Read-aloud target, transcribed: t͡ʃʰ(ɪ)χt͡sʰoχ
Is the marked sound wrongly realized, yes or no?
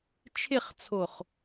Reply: no